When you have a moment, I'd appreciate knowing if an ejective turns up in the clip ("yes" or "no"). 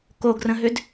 no